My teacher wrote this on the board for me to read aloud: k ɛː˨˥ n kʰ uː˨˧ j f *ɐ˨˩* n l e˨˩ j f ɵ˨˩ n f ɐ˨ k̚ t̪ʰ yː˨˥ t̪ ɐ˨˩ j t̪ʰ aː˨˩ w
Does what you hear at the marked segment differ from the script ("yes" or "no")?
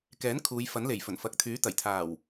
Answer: yes